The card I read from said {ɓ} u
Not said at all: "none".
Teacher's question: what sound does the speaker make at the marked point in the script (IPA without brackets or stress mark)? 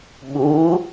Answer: ɓ